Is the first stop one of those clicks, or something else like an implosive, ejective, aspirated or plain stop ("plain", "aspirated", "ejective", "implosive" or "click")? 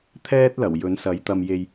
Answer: aspirated